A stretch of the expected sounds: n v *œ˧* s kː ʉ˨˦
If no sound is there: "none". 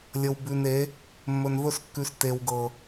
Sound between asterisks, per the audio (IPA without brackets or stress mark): ɵ˧